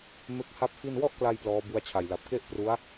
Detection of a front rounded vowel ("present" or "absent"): absent